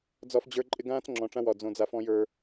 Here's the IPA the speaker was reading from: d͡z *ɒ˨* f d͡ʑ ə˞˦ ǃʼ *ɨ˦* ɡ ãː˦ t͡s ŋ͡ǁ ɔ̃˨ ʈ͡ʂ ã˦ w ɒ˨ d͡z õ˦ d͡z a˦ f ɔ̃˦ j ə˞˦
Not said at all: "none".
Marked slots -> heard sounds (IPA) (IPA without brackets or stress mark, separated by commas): ɒ˦, ɪ˦